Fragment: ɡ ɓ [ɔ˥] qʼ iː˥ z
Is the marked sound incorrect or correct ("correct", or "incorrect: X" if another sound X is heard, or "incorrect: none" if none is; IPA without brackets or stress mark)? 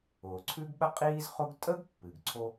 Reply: incorrect: ə˥